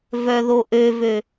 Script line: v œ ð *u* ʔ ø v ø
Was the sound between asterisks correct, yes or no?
no